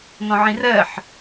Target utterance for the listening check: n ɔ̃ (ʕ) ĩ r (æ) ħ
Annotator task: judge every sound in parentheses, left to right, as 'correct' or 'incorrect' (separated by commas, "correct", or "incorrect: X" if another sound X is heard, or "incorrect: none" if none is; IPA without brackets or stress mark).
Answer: correct, incorrect: ɜ